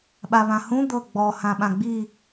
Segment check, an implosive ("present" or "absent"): present